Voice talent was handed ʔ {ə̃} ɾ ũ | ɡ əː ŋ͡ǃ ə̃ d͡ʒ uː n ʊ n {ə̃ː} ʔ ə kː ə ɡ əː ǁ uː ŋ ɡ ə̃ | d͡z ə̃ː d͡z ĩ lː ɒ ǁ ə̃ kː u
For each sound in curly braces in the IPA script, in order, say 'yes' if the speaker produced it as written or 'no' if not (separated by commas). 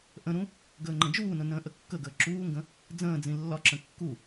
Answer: yes, yes